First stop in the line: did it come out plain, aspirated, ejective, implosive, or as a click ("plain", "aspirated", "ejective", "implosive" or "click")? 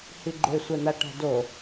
click